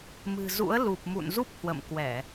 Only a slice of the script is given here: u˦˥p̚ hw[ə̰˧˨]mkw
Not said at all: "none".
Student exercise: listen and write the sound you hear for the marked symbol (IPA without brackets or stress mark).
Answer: ə̰˧˨